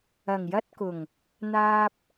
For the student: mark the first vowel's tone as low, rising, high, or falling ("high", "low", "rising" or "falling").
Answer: low